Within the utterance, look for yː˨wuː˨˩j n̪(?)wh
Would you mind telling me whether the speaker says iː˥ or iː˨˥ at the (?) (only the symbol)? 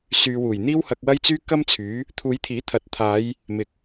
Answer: iː˥